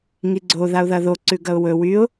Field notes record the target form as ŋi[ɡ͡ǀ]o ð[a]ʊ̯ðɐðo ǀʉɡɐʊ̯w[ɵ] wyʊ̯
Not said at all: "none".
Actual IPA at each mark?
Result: ɡ͡ǀ, a, ɵ

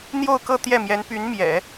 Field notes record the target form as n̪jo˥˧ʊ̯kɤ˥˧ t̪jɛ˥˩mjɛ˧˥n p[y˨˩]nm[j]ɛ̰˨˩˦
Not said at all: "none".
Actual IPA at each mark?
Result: y˧˥, j

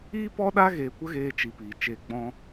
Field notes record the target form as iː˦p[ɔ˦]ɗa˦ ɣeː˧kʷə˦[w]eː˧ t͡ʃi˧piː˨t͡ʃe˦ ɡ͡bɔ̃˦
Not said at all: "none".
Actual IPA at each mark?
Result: ɔ˦, ɣ

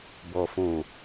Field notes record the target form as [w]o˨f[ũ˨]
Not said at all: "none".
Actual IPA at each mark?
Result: b, ũ˨

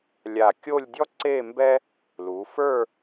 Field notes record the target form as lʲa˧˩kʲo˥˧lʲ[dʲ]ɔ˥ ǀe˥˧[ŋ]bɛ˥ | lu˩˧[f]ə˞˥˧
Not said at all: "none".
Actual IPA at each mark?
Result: dʲ, m, f

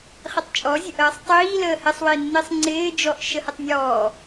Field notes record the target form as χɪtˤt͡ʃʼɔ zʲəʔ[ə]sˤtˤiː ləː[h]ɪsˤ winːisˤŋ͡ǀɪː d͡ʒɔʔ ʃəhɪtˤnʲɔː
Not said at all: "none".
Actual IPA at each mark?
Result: əː, h

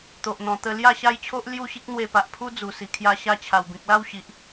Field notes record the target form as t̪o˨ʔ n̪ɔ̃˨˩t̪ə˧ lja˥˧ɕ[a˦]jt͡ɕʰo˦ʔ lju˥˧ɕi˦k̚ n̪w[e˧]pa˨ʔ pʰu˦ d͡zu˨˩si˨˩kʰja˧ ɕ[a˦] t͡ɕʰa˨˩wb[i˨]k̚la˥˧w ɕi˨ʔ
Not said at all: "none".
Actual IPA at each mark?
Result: a˦, e˧, a˧, ĩ˨

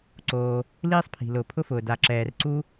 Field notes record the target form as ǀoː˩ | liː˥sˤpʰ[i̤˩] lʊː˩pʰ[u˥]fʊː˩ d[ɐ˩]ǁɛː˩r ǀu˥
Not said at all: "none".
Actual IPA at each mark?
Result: i̤˩, ʊ˥, a˩

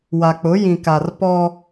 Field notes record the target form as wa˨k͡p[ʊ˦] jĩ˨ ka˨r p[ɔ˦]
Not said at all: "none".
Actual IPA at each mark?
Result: ʊ˨˦, ɔ˦

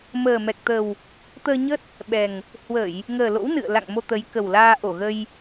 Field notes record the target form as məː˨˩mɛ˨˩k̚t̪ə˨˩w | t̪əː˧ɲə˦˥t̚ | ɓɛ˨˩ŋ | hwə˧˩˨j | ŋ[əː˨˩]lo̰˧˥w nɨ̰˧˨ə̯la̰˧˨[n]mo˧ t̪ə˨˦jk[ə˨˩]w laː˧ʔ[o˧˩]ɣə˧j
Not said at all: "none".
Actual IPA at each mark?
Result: əː˨˩, ŋ, ə˨˩, o˧˩

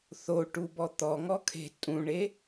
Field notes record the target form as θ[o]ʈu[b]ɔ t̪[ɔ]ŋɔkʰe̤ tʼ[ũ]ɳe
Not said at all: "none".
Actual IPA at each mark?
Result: o, b, ɔ, ũ

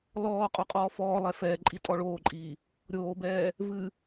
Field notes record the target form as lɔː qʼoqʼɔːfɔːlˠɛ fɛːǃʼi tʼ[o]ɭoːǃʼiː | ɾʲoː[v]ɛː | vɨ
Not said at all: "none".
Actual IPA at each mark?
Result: ɔ, b

